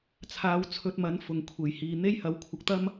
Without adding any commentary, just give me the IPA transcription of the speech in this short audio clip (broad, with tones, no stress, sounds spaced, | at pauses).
t͡sʰ aː˧ w t͡sʰ ɵ˧ t̚ m ɐ˨˥ n f ʊ˨ ŋ kʷʰ e˨˩ j h iː˨ n̪ e˥ j h ɐ˨˥ w kʷʰ ɐ˨ k̚ t̪ ɐ˥ m